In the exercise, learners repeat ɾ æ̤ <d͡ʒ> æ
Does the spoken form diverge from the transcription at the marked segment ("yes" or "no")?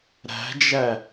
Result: no